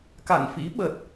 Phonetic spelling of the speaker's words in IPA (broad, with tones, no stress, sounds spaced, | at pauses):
k a̰˧˨ n f ḭ˧˥ ɓ ə˨˩ t̚